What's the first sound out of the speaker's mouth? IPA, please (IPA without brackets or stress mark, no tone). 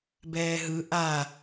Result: b